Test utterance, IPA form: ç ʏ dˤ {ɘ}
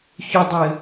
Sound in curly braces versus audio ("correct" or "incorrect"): correct